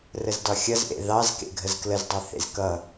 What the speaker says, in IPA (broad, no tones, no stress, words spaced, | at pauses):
rəzdɒxʲʌzʔḛ ðɑzkḛɡʱəz kləzdˤɛθḛz kʌ